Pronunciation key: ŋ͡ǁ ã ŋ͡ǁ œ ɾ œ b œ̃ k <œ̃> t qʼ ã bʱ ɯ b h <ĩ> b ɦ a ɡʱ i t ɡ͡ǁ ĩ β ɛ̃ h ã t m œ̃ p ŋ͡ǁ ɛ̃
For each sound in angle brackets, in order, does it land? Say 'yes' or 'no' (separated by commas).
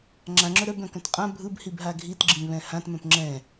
yes, no